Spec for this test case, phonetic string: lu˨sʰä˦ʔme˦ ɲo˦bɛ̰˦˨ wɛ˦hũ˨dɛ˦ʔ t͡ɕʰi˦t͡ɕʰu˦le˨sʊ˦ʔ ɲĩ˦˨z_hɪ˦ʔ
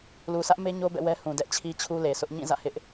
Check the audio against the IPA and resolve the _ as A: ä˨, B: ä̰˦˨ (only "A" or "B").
B